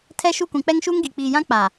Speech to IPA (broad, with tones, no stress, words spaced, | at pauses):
tʰɛ˦ʃu˦˨kʷĩ˨ k͡pɛ˦ŋʃuː˦ŋɡi˨ k͡piː˨jã˦ k͡pa˨